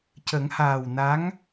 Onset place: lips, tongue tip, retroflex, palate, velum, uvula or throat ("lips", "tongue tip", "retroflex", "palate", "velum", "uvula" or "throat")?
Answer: palate